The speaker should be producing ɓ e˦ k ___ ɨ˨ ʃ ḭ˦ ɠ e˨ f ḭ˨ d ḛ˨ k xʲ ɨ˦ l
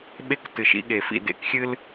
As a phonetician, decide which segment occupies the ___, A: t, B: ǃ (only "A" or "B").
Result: A